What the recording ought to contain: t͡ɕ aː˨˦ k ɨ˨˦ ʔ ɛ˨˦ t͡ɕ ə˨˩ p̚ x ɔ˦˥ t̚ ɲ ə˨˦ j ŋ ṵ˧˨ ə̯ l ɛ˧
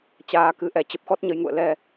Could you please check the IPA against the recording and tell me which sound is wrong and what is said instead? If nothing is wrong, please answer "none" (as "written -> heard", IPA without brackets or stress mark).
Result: none